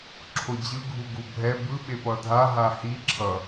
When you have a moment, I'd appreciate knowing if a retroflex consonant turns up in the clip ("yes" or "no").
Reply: no